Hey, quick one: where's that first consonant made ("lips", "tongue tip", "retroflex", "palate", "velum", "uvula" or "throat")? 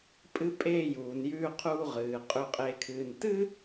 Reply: lips